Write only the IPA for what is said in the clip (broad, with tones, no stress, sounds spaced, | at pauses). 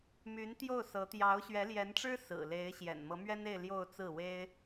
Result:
m y˧˥ n t̪ j o˥˩ ʊ̯ s ɤ˧˥ t̪ j ɑ˧˥ ʊ̯ ɕ ɥ ɛ˧˥ l j ɛ˧˥ n ʈ͡ʂ ɻ̩˥ s ɹ̩˨˩ l e˧˥ ɪ̯ ɕ j ɛ̰˨˩ n m ɤ˧˥ m ɥ ɛ˥ n e˥˧ ɪ̯ l j o˥˧ ʊ̯ t͡s ɹ̩˥˩ w e˥ ɪ̯